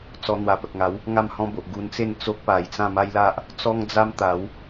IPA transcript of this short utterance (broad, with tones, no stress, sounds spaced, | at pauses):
t͡s ɔ˧ n̪ w a˨˩ p ə˨ k̚ ŋ a˨˦ w | ŋ a˥˧ m h ɔ̃˦ b o˨ ʔ ɡ u˧ n t͡s e˥˧ n t͡s o˦ k̚ p a˨˩ j t͡s ã˥˧ m a˦ j l a˦ ʔ | t͡s ɔ˦ ŋ d͡z a˦ m t̪ a˨˦ w